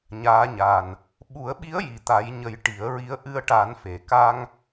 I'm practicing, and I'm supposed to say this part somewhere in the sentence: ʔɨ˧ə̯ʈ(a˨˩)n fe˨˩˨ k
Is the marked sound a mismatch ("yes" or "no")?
yes